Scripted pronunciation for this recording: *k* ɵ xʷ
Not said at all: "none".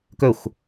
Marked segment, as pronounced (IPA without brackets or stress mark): k